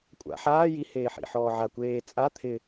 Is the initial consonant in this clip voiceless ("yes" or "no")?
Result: yes